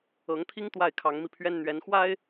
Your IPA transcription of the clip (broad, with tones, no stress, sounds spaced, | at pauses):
ɤ˨˦ ŋ t̪ʰ i˦ ŋ t̪ w a˥˨ ɪ̯ kʰ ɑ˨˦ ŋ m i˧ pʰ ɥ ɛ˦ n n̪ ɥ ɛ˨˦ n x w a˦ ɪ̯